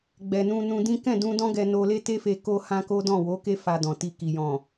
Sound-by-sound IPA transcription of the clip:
ɡ͡b ɛ˨ n ũ˧ n ũ˧ d ĩ˦ k ɛ̃˦˨ d ũ˧ d ɔ̃˦ ɡ ɛ˧ n o˧ l e˦ t e˦ f e˧ k o˧ h ã˧ k o˦ d ɔ̃˦˨ w o˨˦ k e˦ f a˧ d ɔ̃˨ t i˧ k i˨ j ɔ̃˨

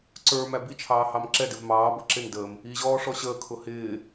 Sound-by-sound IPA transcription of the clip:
ǀ ə˞ m æ b i t͡ʃʰ ɑː h ɑ m ǁ ɛ d ɪ v m ɑː b ʌ ǁ ɪ n d əː m | i ʑ ɔː ʂ ɔ ɕ əː kʰ ʊ h ɪː

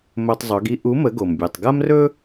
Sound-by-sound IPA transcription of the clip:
m ɵ˧ tˤ zˤ ɵ˩˥ ɡ i˧ ʔ u˩˥ m ə˩˥ ɡ o˩ m bʲ u˩ tˤ ɡ a˥ m r ɵ˥

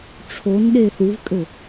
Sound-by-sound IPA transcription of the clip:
ʈ͡ʂʰ o n ɗ e θ u v kʼ ɘ

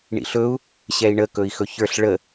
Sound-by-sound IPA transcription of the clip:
ɳ ḭ ɬ ɵ u̯ | ɕ ɛ i̯ ɳ ə k ɵ i̯ x ɵ ç ə˞ ɬ ɭ ə

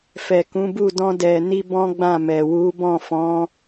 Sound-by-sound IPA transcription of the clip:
f ɛ˨ k ũ˨˦ b u˦˨ d ɔ̃˧ d ɛ˨ n i˧ b ɔ̃˦ ɡ͡b ã˦˨ m ɛ˨ w u˨˦ b ɔ̃˦˨ f ɔ̃˨˦

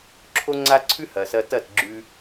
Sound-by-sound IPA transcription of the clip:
ǁʰ o˦ ŋ͡ǀ a˦ ǀʰ ʉ˦ h ɐ˨ s ɐ˧ t ɐ˦˨ t ɡ͡ǁ ʉ˧

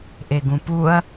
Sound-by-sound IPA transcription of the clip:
ʔ e ɡ ũ p u ɐ̯

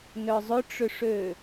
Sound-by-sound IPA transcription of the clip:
n œ zˤ ʏ ʈ͡ʂ ʏ ʂ ø

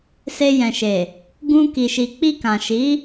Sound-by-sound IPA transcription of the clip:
s e˧ j ɛ̃˨ ʃ e˨ | ɡ ũ˧ k i˨ ʃ i˨ k͡p i˧ k ã˨ ʃ i˨˦

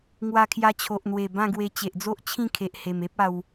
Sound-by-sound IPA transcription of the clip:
ŋ w a˧ kʰ j a˧ t͡ɕʰ o˨ ʔ n̪ w e˨˩ b ã˥˧ ɡ w e˧ t͡ɕ e˨ ʔ d͡z o˦ ʔ t͡ɕʰ ĩ˥˧ kʰ e˨ ʔ h e˨˩ m e˦ p̚ a˧ w

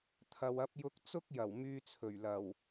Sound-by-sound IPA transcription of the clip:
t̪ʰ ɐ˧ w ɐ˥ p̚ j ʊ˥ k̚ t͡s ʊ˥ k̚ j ɐ˨˩ w m yː˧ t͡sʰ ɵ˨˩ ɥ l ɐ˨˩ w

